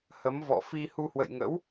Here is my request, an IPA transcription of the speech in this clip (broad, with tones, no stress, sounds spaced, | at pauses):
h ə˨˦ m v ɔ̰˧˨ f i˧ h u˧ h w ə̰˧˨ j ŋ ə̰˧˥ w